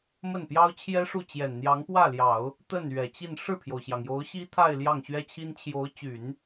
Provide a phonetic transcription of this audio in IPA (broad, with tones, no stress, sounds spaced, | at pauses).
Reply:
m ə˥˩ n p j ɑ˥ ʊ̯ t͡ɕʰ j ɛ˥ ʂ u˥˩ t͡ɕ j ɛ˨˩ n n̪ j ɑ˧˥ ŋ p w ä˥˩ l j ɑ˨˩˦ ʊ̯ | t̪ ə˥˩ n ɥ ɛ˨˩ t͡ɕ i˥˧ n ʂ ɻ̩˥˩ pʰ j o˩ ʊ̯ ɕ j ɑ˩ ŋ j o˧˥ ʊ̯ ɕ i˥ t̪ʰ a˥˧ ɪ̯ l j ɑ˥˩ ŋ ɕ ɥ ɛ˥ t͡ɕʰ i˥ n t͡ɕʰ j o˧˥ ʊ̯ t͡ɕ y˨˩˦ n